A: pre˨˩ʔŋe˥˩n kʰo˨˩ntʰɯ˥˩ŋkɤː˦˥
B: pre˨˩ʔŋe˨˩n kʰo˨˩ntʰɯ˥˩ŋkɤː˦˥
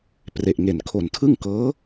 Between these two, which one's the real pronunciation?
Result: B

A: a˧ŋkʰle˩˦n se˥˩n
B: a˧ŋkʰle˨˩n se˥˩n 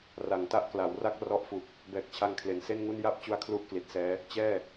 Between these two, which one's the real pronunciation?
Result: A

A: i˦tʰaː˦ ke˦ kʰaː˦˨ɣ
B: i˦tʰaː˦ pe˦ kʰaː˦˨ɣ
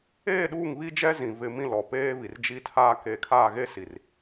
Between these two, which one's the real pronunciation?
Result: A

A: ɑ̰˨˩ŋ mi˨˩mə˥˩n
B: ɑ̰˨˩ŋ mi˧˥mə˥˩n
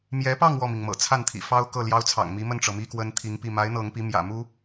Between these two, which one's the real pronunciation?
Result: B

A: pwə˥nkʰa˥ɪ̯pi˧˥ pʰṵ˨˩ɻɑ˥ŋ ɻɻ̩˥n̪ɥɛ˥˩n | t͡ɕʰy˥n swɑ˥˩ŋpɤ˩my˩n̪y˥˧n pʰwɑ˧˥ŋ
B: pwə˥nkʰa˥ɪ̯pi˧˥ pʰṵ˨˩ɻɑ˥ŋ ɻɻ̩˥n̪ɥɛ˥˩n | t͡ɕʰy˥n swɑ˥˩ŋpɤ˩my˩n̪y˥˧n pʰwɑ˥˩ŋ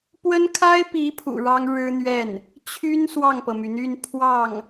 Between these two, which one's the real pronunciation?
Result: B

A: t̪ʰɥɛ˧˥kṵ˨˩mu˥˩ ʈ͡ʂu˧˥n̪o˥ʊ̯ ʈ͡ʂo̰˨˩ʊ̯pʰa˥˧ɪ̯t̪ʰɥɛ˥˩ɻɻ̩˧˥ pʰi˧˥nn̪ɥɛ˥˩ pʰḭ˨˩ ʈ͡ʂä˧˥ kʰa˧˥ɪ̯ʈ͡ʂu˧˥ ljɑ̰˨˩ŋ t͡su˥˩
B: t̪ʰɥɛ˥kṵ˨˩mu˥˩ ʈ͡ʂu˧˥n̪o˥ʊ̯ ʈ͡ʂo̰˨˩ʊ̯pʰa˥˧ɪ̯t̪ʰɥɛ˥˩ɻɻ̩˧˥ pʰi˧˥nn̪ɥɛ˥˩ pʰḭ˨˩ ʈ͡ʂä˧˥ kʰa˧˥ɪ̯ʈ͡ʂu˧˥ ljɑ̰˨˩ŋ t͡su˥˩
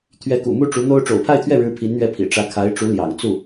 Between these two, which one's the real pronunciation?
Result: A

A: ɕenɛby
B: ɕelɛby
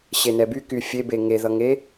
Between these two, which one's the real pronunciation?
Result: A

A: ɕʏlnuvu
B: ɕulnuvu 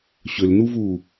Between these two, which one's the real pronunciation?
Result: A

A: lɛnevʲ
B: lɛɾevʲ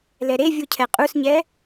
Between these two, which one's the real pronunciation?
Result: B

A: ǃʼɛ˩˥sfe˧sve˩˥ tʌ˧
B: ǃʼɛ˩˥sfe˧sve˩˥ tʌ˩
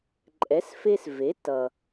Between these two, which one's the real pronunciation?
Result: B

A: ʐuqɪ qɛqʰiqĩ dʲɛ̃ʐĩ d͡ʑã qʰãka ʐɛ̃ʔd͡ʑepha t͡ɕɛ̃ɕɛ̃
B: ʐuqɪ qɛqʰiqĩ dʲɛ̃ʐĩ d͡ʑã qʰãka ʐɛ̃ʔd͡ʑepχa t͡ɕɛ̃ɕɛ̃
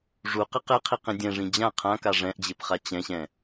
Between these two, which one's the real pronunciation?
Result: B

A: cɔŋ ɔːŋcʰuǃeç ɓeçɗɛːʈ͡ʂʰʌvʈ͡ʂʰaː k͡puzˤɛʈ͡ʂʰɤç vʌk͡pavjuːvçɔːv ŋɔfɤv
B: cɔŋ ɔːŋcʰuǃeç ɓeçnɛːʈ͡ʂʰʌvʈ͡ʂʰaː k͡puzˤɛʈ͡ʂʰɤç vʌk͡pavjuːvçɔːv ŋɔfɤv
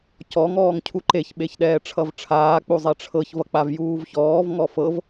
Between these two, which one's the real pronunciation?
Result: A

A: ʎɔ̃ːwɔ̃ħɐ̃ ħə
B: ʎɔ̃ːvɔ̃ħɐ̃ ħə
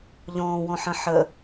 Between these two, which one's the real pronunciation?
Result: A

